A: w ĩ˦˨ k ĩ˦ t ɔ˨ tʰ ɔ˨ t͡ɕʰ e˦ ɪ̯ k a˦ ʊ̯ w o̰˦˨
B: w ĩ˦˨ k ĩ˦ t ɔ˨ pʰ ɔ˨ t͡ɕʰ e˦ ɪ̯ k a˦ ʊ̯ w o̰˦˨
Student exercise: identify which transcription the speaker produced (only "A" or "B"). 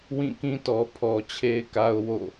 B